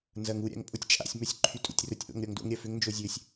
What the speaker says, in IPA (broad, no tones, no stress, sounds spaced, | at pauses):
n z ɐ ŋ u ɾʲ a̰ ŋ pʼ ʊ tʲ t͡ʃʼ a̰ sʲ m œ sʲ ǃʰ y tʼ ṵ tʲ r ʊ tʲ ʔ o̰ ŋ ɾʲ ɔ ŋ d o̰ ŋ ɾʲ ɐ f ʏ ŋ n d͡ʒ o zʲ ø sʲ